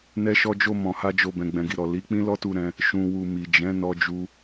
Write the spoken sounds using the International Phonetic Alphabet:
n ɛ˧ ʃ ɔ˧ d͡ʒ o˧ m ɔ̃˨ h a˧ d͡ʒ o˧ b ɛ̃˨ ɡ͡b ɛ̃˨ ɡ i˨ ɾ ɔ˨ l i˨˦ k͡p ĩ˦ l ɔ˦ t u˧ ɾ ɛ̃˧ | ʃ ũ˨ w u˨ m i˨ d͡ʒ ɛ̃˨˦ n ɔ˧ d͡ʒ u˧

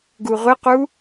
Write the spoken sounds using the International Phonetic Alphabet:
ɡ u ʁʷ ɪ q u

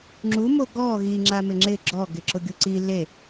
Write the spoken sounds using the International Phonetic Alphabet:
ŋ͡ǁ u m o ɡ ɔ ɣ i ŋ͡ǁ a m ɪ ŋ͡ǁ ɪ ɡ͡ǁ ɔ ɡ ɪ ǁ ʊ ɡʲ u ǀ i l e

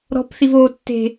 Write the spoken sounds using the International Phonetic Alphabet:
ɾ ɔ̤ p θ i v o tː e̤

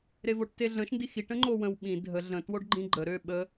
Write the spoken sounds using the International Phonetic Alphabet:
ɾ e v o ʈ t e ɮ ə̃ ʃ n d i x i ʈ ə̃ ŋ͡ǃ o w ə̃ w ɓ ĩ dʱ ə ɮ ə̃ t w o ɖ ɡ͡ǃ ĩ ɡ͡ǃ ə ɾ ø ɓ ə

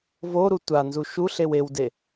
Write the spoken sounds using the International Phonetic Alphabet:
v o ɾ u tʷ a n z u ʃ u ɬ e w e w d e

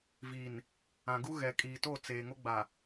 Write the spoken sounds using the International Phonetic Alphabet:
v iː˨ n | ã˨ ɡ u˦ ɣ ɛ˨ kʼ iː˨ t o˦˨ t͡s eː˨ ŋ o˦ ɡ͡b a˨

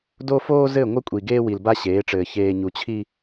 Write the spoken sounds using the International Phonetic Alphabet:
d o˦ f oː˦ z ɘ˦˨ ŋʷ ɘ˦ kʷʼ i˨ ɡ eː˦ w i˨ l b a˦ ɕ eː˨˦ ʈ͡ʂ ɘː˨ ç eː˨ ɲ u˨ t͡ɕʰ i˦

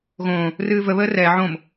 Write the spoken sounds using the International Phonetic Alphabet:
ɣ õː | r ɨː v ə β əː r ɛː ʕ õ m

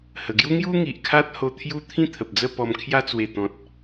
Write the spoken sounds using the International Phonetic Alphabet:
h ə˨˩ ɡ j u˦ ŋ j u˦ ŋ i˨ ʔ kʰ a˦ t̚ h o˧ t̪ʰ j u˦ t̪ʰ ĩ˥˧ t̪ʰ ə˨ p̚ d͡z ə˥˧ p ɔ˧ m kʰ j a˧ t͡s w e˨˩ t̪ ɔ̃˨ t̚

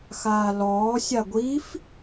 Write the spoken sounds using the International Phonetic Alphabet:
x aː l ɔː sʲ a ɡʷ i f

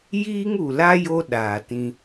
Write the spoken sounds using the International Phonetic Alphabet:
j iː˦ ŋ u˨ l a˦ j o˦ ɗ aː˨ t ĩ˦

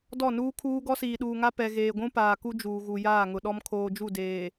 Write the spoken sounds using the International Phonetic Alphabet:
d ɔ˦˨ n uː˦ kʰ uː˦ ɡ ɔ˦ s iː˨ ɗ uː˨ ŋ a˦ p ɛ˨ ɣ eː˨ ɡʷ ũ˦ p aː˨ k u˦ d͡ʒ uː˨ ɣ u˨ j aː˦˨ ŋ ʊ˨ ɗ ɔ˦ m kʰ oː˨ d͡ʒ u˦˨ d eː˨

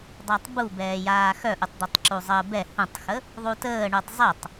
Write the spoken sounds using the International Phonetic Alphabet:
dˤ a tˤ b u b ɛː j aː x œ ʔ u tˤ d̪ œ tˤ ǁ u zˤ əː b ɛ h ũ tˤ x ə | ðˤ u t əː ɳ u tˤ zˤ e tˤ

